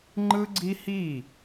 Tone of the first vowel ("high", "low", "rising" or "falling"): high